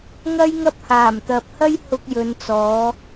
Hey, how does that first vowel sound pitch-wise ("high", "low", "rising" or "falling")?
high